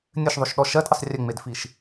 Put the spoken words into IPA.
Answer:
nʲɘʃðˤoʃɗɔ ʃɜdʔɘsˤ rʲɘŋ͡medfiʃ

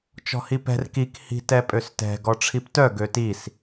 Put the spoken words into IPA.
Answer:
t͡ʃɔ̤hipɛ̤r kik hi̤tɛpʼøstɛ̤ ɡɔʈ͡ʂʰiptœ ɡøtis

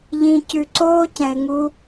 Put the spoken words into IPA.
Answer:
ʎĩ˧cʉ˧ ǀoː˦cɛ̃˨ɪ̯ ŋu˦

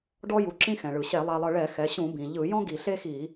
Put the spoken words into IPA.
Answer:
ɖɔ˧ju˩ǁĩ˧ xɛ̃˩ɭɯ˩ ɕɛ˧˩˧ lˠa˧lˠɤ˧ ɭɛ˧˩˧xɛ˩˧ɕũ˧˩˧ bĩ˩ʎɯ˧˩˧ jɔ̃˥ɡi˧˩˧ ɬe˥xi˧˩˧

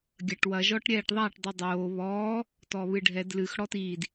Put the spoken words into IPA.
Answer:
ɡʲɐʈwɐ ʒɔʈɾʲɛːʈðˤaʈ dˤidˤoː βɔː | tɔβɨɖʱɛd lɨx ɽɔtiːd

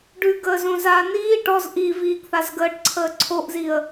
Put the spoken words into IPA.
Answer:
ɖʉɡəːzõzaː niː ʈɔz ʔiviːɡθaz ɡəːʈǀʰəː ǀʰoʔziə̯

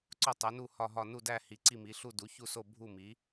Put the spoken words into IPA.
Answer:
ǀo˥˧ tˤe˨˥nu˥˧ hɒ˥˧ɦɒ˥˧ nu˥˧dæ˥˧ hi˨˥ ǀi˥˧mi˨˥ɬu˥˧ du˨˥çu˥˧so˥˧ bʱu˥˧mi˨˥

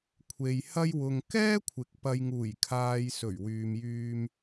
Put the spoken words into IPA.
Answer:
kʷʰe˨jhɐ˥jwʊ˧ŋ kɛː˥kʷʰɪ˨˥k̚pɐ˨j ŋuː˨˩jkʰaː˨j sɵ˨˩ɥwyː˨mjyː˧m

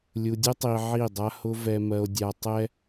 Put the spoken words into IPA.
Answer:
lʲu˨dʲʊ˦tˤi˨ ʕi˦˨dˤa˦hʊ˦ vɛ˨mɜ˨o̯dʲa˨tˤɛ˦

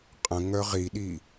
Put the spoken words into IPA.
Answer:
qʼə̃ ŋœʁiɗi

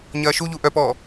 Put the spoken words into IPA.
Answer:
ɲɐːʃuʎu ʔœpɔː

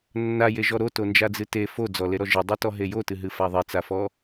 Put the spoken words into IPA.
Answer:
nːajeʒɔ ɾotond͡ʒad͡zɨ te fod͡zɔleɾɔ ʒɨdˤɨtɔɦe jotɨɦɨfa ðˤet͡safɔ

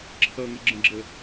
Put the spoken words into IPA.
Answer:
ǁʰʌŋəɡ͡ǁə̃ɡ͡ǁə

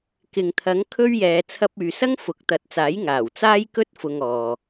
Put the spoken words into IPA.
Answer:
kɪ˨ŋt̪ʰɐ˨˥ŋkʰɵ˥ɥjɛː˨˧ t͡sʰɐ˧p̚yː˨sɐ˥ŋ fʊ˨˥k̚ t̪ɐ˨˥t̚t͡saː˨˥jŋaː˨˩w t͡saː˥jkɵ˥t̚ fʊ˧ŋɔː˨

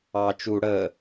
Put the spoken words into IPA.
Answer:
ɑ t͡ʃu ɽə

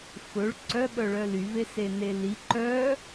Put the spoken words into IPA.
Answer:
fɵɭ ǀœɓœɭœ lyvesene li ǃœ

